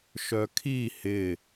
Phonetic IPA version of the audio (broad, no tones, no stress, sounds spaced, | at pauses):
ʃ œ kʰ i h ɪ